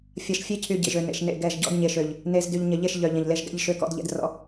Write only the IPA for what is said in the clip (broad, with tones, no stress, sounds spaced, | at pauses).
fʲ ɐ˨ ʃ fʲ e˦ cʰ y˨ ɟ ḛ˨ ʒ ø˨ n ḛ˨ ʃ n ḛ˦˨ ɡ ɛ˦˨ ʒ ɟ ɔ̰˦ d ɲ e˨ ʃ ø˨ ʎ | n e˨ z d y˨ ʎ ɲ ɐ˨ ʎ e˦˨ ʃ ʎ œ˨ ʎ ɐ̃˨ ʎ l e˦ ʒ ɡ ɛ̰˦ ʎ ʃ ø˦ k ɔ̰˦ d ʎ ɛ̰˦ d r ɔ̰˦